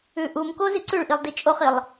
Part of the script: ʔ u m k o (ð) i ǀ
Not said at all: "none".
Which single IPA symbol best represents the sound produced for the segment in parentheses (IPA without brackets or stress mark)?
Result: z